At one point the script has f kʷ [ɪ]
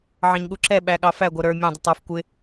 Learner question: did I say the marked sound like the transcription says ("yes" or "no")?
yes